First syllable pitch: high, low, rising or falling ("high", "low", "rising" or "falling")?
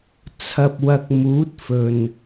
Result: low